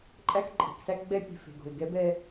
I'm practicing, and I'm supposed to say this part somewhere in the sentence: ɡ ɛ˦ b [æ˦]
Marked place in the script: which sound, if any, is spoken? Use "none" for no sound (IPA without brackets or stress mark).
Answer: ɛ˦